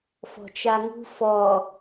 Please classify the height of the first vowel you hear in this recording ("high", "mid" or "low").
mid